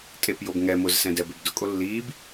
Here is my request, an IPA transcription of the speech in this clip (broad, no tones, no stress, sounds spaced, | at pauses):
tʼ e p j o b ŋ ɛ m ʊ z s ɛ̃ d ɛ b e b d ʊ kʼ o lː iː b